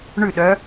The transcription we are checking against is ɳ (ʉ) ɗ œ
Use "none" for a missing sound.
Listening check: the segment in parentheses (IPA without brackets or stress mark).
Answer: ʉ